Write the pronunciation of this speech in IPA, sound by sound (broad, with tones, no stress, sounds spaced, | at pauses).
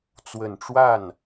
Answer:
t͡s w ə˨˩ n ʈ͡ʂ w a˥˩ n